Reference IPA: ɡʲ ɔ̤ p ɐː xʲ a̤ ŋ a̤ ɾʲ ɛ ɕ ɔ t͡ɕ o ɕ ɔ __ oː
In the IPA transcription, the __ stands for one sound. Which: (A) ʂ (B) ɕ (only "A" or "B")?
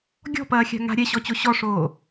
A